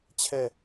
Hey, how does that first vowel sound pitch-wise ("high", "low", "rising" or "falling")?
falling